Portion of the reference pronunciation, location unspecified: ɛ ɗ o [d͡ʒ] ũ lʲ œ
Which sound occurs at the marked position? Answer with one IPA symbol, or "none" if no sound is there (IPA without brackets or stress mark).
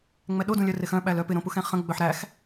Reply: d